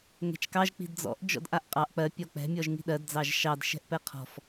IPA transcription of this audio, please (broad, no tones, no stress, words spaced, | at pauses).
ŋɛ̤t͡ʃkɑʒ k͡pi̤dd͡zɔ̰ʔ d͡ʒɔ̰dʔaʔqʼɑʔ k͡pɜ pʲɔk͡pɛ̤ mʲɔʒŋi̤ɗɜd d͡zɑʒʃɑd ʃɛ̤ʔpɛqʰɔ̤f